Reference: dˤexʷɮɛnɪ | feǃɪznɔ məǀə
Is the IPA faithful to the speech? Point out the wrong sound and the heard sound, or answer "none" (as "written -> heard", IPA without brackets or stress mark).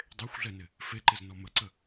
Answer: none